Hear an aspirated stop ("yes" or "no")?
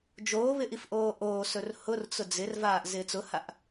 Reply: no